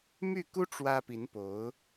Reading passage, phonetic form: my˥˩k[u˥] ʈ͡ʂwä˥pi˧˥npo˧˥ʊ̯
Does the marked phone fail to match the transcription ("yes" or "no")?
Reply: no